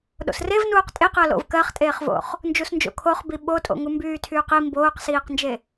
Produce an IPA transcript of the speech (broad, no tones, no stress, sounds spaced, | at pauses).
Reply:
ɗ o̰ s r e v n uː q tʼ e q ɜ l o̰ v k ɜ χ tʼ eː χ v o̰ χ | n d͡ʒ u s n d͡ʒ o̰ kʰ o χ b i ɓ o tʼ o̰ ŋ u m b yː tʰ yː q i m b oː q s iː q n d͡ʒ e